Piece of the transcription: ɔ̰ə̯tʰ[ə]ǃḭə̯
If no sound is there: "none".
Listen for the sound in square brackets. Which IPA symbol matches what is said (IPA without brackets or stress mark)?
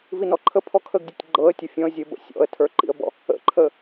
ə˞